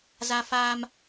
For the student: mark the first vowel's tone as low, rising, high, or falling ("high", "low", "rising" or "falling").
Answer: high